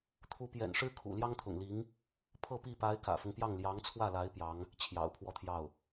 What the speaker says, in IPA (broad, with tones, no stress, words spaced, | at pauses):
t̪ʰu˧˥pjɛ̰˨˩n ʂɻ̩˥kʰṵ˨˩ ljɑ˥ŋt̪ʰʊ̰˨˩ŋli˧˥ŋ | pʰɤ˥˧pi˥˩ pa˧˥ɪ̯ kä̰˨˩fʊ˦ŋpjɑ˥˩ŋ ljɑ˧˥ŋt͡sʰwä˥˩la˧˥ɪ̯ pjɑ˧˥ŋ | t͡ɕʰjɑ̰˨˩ʊ̯pʰwɔ˥˧t̪ʰjɑ˥˩ʊ̯